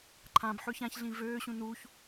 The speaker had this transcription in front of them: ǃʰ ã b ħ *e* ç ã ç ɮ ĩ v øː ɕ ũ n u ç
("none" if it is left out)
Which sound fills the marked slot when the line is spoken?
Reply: ø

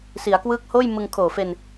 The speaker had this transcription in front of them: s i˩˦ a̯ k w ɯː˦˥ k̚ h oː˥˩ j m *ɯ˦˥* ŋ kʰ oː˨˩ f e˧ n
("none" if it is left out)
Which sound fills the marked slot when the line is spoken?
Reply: ɯ˧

